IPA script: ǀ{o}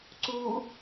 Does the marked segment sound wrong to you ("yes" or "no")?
yes